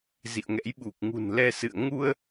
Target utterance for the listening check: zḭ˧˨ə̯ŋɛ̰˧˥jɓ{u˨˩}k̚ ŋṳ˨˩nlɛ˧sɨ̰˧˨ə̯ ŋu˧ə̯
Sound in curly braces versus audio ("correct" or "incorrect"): correct